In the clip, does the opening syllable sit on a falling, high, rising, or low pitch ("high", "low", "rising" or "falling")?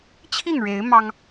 falling